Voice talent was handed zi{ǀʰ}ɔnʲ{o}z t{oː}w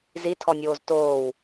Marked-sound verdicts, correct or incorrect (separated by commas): incorrect, incorrect, correct